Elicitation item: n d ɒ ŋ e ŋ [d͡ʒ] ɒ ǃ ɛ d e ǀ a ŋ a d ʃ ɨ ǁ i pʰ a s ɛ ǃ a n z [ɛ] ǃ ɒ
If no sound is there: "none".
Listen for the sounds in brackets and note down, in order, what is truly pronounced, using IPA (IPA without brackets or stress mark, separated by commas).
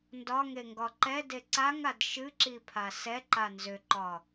ɡ, ʏ